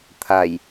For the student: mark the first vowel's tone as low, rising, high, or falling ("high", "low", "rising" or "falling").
low